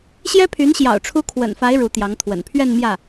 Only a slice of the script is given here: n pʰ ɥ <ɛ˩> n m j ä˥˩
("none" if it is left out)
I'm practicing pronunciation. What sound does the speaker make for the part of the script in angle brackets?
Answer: ɛ˥˧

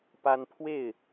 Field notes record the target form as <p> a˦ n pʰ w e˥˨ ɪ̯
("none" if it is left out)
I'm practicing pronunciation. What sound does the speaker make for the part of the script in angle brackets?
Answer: p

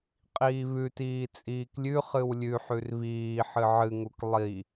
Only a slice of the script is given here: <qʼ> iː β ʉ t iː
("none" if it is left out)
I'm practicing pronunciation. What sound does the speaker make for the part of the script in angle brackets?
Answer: qʼ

